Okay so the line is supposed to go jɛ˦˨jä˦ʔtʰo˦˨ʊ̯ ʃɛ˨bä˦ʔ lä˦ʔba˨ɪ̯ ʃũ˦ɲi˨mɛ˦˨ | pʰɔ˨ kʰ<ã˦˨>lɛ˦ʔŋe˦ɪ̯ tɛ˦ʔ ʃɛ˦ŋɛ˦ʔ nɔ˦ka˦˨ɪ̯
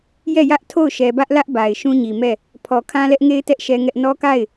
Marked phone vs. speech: incorrect: ã˦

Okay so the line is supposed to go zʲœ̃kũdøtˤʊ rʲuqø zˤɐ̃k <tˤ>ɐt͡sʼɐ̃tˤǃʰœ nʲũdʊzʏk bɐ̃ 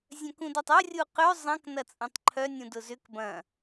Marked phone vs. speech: incorrect: n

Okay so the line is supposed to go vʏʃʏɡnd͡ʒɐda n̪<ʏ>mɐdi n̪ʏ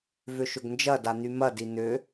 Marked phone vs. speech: incorrect: y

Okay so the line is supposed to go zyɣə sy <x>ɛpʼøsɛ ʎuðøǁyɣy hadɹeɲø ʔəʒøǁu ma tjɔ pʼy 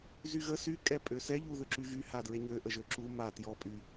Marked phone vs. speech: incorrect: kʼ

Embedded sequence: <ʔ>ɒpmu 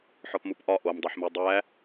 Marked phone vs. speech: incorrect: ħ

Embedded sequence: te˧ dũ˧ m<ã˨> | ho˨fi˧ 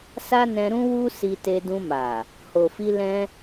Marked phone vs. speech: incorrect: a˨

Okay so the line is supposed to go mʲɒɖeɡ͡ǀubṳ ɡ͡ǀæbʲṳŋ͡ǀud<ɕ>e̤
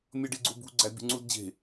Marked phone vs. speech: incorrect: d͡ʑ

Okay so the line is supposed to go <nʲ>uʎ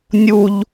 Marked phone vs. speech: correct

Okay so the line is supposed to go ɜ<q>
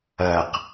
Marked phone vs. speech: correct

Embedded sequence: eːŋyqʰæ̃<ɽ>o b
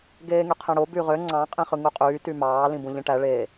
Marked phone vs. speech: correct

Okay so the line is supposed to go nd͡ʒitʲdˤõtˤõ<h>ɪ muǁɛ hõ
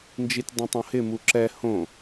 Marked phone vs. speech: correct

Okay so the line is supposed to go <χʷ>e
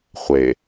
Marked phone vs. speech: correct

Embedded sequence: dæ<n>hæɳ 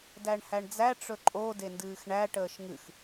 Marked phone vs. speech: incorrect: ɳ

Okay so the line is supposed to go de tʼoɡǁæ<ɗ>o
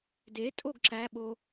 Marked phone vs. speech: incorrect: ɓ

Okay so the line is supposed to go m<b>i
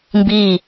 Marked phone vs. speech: correct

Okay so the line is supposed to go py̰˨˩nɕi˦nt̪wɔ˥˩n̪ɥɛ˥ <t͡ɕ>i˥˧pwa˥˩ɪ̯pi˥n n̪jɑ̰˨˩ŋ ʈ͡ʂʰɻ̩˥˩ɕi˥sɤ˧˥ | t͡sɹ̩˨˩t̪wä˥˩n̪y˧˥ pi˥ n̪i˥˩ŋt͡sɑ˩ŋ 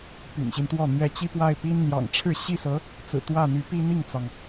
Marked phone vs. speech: correct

